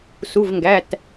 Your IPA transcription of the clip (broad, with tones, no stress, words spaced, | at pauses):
su˩˧˩vŋɡæ˩˧˩t